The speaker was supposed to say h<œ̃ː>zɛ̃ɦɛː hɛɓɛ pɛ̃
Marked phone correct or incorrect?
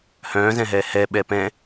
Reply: correct